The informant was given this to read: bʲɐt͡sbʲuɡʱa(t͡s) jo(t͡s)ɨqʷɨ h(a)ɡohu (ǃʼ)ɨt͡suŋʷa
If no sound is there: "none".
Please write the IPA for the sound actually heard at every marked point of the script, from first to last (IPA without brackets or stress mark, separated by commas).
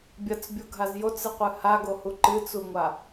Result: z, t͡s, a, ǃ